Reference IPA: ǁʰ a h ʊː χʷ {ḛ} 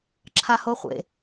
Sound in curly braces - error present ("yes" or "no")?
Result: no